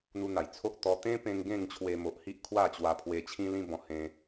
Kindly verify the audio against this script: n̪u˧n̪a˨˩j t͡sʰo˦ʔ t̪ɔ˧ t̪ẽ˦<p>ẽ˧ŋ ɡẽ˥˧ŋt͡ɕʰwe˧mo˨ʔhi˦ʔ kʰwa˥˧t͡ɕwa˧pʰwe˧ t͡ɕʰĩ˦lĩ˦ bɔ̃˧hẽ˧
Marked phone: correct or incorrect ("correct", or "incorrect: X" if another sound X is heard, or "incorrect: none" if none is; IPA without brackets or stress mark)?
correct